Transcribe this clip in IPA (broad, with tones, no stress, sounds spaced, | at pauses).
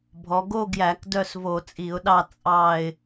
bʱ ɔ˩˧ ɡ o˦˨ ɡ j æ˧˩˧ k d œ˦˨ s v o˧˩˧ t͡sʼ i˧˩˧ ʊ̯ ɗ ɑ˦˨ t͡sʼ ɑ˦˨ ɪ̯